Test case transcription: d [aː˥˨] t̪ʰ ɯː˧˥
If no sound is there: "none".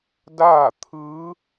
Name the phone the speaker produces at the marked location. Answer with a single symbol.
aː˥˨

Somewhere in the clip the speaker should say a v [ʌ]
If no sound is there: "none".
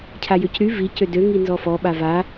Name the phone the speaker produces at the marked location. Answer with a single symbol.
a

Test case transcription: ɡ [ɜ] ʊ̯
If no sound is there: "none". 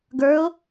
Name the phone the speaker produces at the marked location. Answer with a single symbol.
ə˞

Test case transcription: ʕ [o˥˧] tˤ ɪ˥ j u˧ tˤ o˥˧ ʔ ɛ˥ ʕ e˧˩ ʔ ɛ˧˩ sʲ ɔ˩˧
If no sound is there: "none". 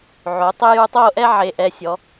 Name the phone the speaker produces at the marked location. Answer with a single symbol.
o˩˧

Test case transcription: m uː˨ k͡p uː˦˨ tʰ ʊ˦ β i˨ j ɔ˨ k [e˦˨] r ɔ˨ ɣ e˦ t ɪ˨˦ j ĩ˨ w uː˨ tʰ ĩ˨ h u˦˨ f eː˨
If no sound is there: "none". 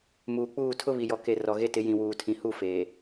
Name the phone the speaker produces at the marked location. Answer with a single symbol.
e˨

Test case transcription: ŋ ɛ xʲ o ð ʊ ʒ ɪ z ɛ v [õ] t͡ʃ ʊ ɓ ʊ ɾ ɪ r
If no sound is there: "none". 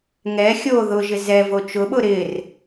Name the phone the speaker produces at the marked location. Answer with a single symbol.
o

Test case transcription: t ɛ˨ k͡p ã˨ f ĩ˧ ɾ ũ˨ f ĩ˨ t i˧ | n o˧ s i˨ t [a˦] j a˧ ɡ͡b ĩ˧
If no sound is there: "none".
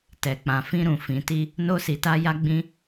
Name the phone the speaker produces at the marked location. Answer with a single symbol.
a˧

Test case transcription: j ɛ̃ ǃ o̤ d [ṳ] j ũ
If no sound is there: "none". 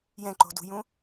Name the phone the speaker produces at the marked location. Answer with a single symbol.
ṳ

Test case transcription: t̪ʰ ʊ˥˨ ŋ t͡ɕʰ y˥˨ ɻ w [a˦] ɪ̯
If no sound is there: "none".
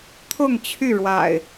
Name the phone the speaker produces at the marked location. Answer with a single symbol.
a̰˨˩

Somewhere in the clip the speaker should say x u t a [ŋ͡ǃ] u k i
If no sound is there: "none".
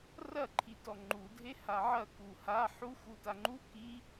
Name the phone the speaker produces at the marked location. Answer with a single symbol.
ŋ͡ǃ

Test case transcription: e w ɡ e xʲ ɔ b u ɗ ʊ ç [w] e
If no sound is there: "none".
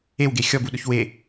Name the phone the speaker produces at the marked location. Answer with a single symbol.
w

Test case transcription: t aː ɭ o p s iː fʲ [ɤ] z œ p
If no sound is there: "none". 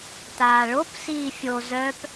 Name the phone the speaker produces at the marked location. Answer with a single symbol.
o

